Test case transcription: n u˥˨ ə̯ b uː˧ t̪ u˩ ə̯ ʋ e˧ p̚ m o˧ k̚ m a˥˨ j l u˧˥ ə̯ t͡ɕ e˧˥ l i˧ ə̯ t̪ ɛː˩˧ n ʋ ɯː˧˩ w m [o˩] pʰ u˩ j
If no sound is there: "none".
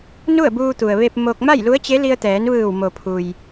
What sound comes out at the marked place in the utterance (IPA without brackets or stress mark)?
o˩